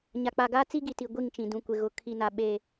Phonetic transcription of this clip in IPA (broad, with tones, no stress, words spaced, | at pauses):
ɲa˨k͡pa˨ɡaː˦ t͡si˦ɡi˨ti˨ ɡʷi˦˨ŋt͡ʃĩ˨ dũ˨kʷɪ˨ɣʊ˨ kʰi˨na˨ ɓe˨